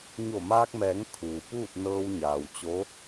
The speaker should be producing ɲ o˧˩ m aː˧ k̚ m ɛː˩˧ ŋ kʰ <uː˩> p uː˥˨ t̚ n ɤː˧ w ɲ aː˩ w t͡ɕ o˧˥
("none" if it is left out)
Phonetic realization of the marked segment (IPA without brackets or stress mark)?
uː˩